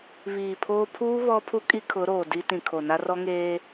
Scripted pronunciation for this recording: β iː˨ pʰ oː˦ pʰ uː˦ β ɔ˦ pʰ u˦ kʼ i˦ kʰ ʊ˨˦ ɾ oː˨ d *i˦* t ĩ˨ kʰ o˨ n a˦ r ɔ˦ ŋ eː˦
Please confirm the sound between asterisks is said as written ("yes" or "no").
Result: yes